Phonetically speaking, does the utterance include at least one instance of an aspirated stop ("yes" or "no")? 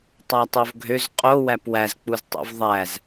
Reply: no